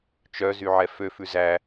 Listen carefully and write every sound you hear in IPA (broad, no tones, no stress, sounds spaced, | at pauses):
t͡ʃ œ z y ʕ ɛ f ø f ʉ z æ